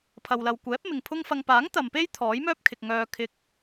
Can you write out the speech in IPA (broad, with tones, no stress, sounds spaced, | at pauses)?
pʰ ɐ˨ w l ɐ˨ w kʷ ɛː˨˥ p̚ m ɪ˨ ŋ pʰ ʊ˥ ŋ f ɐ˧ ŋ p aː˨˥ ŋ t̪ ɐ˨ m p e˥ j t̪ʰ ɔː˨˥ j m œː˥ p̚ kʰ ɪ˨ k̚ ŋ œː˨ kʰ ɪ˧ k̚